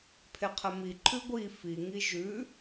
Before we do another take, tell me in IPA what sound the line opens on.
pʰ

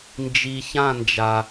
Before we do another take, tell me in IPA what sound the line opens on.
n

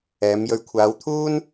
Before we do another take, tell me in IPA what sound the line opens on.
ɛː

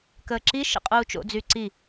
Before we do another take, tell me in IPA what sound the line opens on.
k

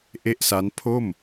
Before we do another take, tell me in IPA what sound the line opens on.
ʔ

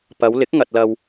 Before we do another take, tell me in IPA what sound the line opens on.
p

